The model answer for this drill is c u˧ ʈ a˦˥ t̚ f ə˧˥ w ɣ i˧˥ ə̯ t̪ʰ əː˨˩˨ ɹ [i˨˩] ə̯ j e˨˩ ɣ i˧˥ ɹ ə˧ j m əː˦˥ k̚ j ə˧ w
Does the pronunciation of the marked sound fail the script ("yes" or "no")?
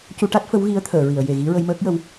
yes